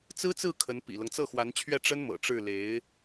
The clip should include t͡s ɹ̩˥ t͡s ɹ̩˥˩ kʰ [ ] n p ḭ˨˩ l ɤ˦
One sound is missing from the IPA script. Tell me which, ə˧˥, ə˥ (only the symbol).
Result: ə˧˥